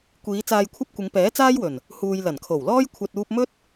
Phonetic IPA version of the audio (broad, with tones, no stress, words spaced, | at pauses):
kʷiː˨˧ t͡saː˧jkʷʰɐ˥p̚ kʷɪ˨˧ŋpɛː˨˥t͡saː˥jwɵ˨˩n | huː˨j lɐ˨˩nkʰo˨˩wlɔː˥j kʷʰɐ˨t̚uː˧p̚mɵ˥t̚